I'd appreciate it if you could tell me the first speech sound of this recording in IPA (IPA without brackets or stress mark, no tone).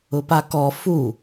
ʊ